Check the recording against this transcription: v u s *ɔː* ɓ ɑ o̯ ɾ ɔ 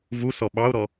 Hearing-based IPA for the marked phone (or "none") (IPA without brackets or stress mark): ɔ